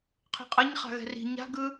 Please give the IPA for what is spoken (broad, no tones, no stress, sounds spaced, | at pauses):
qʰ ɛ̤ qʼ ʌ ɲ χ a̤ ɣ ɛ̤ r i̤ ɲ a̤ ɡ ɯ